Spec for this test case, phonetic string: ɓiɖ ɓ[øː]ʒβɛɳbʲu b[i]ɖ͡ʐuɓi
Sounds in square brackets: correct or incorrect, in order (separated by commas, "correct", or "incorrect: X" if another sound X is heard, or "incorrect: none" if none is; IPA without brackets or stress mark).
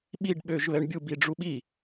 correct, correct